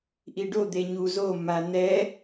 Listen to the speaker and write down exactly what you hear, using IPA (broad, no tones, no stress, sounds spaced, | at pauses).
ʔ i ɖ o d̪ e ɲ u z o m a n̪ ɛ